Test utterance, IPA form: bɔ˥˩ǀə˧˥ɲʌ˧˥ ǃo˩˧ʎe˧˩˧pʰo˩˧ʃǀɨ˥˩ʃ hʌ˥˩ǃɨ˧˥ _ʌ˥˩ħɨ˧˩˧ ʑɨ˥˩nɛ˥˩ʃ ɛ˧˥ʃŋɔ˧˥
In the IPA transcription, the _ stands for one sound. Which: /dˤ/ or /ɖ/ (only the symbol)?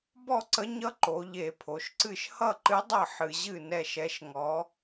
dˤ